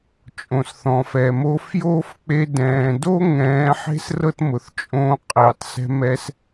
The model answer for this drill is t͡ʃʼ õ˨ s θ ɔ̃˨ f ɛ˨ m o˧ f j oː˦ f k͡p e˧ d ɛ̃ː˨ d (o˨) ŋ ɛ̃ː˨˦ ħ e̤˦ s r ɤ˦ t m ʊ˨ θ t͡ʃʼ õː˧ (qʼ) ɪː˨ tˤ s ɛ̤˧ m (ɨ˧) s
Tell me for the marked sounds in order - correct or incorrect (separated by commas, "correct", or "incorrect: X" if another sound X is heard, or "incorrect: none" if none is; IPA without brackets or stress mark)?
incorrect: o˦, correct, incorrect: ɛ˧